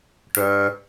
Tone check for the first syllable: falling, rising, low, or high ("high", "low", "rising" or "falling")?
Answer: high